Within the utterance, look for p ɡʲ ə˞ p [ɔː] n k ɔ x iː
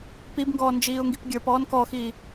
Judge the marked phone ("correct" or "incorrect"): correct